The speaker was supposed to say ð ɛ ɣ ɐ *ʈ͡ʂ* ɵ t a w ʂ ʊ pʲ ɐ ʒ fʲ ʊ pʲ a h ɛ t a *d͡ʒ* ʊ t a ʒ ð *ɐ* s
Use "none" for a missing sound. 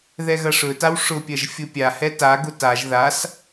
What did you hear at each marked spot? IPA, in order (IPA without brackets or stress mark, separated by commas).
ʂ, ɡ, a